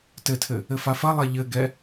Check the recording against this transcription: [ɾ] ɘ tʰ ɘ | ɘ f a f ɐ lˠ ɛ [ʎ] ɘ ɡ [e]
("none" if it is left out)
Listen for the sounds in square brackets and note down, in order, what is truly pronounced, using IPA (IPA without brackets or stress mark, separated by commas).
t, ʎ, ɛ